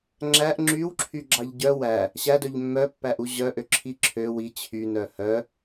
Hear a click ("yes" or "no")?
yes